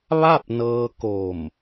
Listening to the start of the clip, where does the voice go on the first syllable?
falling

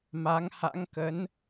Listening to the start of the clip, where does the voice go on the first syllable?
rising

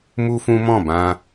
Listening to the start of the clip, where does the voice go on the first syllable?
high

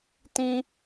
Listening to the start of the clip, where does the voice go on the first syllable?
high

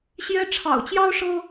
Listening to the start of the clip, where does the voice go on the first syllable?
high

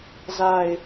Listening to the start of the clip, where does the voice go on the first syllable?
low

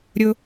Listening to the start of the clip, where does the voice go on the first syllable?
low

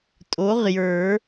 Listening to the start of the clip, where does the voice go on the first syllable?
rising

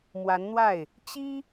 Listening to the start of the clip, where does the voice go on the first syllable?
rising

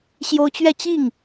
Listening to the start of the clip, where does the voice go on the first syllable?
high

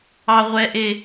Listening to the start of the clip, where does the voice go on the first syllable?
low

